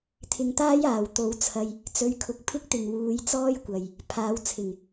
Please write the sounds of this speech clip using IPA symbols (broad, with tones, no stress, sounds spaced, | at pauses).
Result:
t̪ʰ ɪ˨ ŋ t̪ aː˥ j aː˨˩ w t̪ o˨˥ w t͡sʰ ɐ˧ j | t͡s ɵ˨˥ ɥ kʰ ʊ˨ k̚ pʰ ɪ˥ k̚ t̪ ɪ˨ ŋ w uː˨˧ j t͡s ɔː˥ j kʷ ɐ˨ j | pʰ aː˨˧ w t͡sʰ ɪ˨˩ ŋ